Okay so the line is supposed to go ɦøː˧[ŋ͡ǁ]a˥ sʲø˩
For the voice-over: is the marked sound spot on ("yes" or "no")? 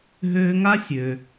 no